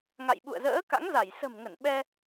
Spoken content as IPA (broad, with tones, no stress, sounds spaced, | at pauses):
ŋ a̰˧˨ j ɓ ṵ˧˨ ə̯ z ə̰ː˧˥ k a̰˧˥ ŋ z a˧˩ j s ə̤˨˩ m ŋ ə˧˩ n ɓ ɛ˧